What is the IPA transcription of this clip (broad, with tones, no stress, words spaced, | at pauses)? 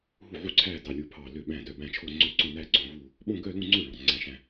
ɦu˥˩ʕu˥˧ǀʰæː˥˧ dɑ˥˧lʲu˥˩pʰɑː˥˧ lø˥˩ ɓæ̃˥˩dœ˥˩ bæ̃˥˩t͡ʃʰo˥˧ ŋ͡ǀø˥˩ǀõ˥˧næː˥˧ ɡ͡ǀõ˥˧vuː˥˧ | ɓõ˥˧ɡœ˥˧lũ˥˧ŋ͡ǀø˥˩ ɭɑ̃˥˩ ŋ͡ǀæ̃˥˧ʃæ̃˥˧